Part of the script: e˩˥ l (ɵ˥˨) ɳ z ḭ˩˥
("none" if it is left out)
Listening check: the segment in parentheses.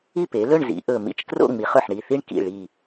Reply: ɵ˥˨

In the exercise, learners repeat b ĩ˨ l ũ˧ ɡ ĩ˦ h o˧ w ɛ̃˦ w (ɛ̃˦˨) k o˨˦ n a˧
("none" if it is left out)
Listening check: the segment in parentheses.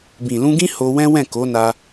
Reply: ɛ̃˦˨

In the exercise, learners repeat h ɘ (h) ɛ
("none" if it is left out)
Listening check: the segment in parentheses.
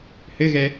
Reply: ɣ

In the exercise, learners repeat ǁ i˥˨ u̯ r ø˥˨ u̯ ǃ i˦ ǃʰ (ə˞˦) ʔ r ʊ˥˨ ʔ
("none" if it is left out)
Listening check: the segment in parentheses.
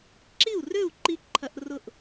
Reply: ɐ˦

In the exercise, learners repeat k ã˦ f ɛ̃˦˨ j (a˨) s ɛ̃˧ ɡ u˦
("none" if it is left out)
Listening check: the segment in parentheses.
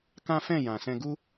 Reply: ã˨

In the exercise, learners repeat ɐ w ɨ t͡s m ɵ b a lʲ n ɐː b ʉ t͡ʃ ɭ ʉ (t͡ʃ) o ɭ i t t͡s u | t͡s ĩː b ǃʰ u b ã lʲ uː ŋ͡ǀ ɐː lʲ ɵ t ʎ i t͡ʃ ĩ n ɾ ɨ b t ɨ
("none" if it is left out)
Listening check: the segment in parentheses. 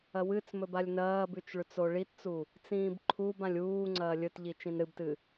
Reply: t͡s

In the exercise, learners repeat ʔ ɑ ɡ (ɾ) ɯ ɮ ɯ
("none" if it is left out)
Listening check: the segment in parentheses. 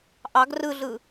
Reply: r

